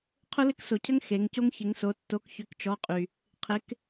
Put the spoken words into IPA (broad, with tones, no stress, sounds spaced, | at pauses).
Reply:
qʰ ʊ˥ l ɪ˥ k s o˨ cʰ ə˥ ŋ x e˨˥ ŋ c o˥ ŋ ç ɪ˨˥ ŋ s o˨˥ tː o˨˥ k ç ʏ˨˥ k t͡ʃ ɔ˨˥ qʼ y˨ | qʰ ɪ˨˥ k